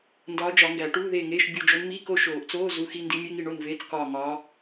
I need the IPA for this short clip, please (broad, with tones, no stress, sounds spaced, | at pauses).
n d ɒː˧˥ d͡ʒ ɒ˨˩˦ ŋ ɡ æ˨˩˦ ʈ uː˧˥˧ ð eː˦˨ ŋ eː˧˥˧ ʃ bʲ u˦˨ d͡ʒ o˧˥ n m i˧˥˧ k o˦˨ ʃ oː˨˩˦ ʔ t͡s oː˧˥˧ z u˧˥ x i˧˥˧ n d i˧˥ mʲ e˧˥˧ ŋ i˦˨ ɳ o˦˨ n v eː˧˥˧ t͡s k ɒː˦˨ ŋ ɒː˧˥